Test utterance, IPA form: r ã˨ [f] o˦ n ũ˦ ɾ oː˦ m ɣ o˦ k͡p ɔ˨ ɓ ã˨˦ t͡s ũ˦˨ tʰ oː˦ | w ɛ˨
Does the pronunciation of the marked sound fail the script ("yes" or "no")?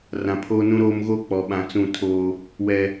yes